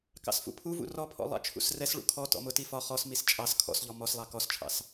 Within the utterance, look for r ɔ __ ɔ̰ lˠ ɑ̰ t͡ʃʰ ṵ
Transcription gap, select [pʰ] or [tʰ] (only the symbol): pʰ